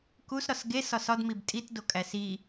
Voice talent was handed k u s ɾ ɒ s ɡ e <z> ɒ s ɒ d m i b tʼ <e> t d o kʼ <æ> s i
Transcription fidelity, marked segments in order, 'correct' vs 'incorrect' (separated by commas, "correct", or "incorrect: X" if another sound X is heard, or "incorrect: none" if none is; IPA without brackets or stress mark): incorrect: s, incorrect: i, correct